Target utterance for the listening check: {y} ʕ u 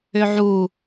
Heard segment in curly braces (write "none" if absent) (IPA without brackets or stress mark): ʏ